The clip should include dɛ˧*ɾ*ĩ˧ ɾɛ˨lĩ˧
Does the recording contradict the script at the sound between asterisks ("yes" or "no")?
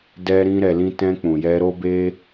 no